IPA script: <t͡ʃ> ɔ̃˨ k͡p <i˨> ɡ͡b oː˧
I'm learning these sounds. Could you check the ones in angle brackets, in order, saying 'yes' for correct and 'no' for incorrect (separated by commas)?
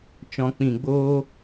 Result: yes, no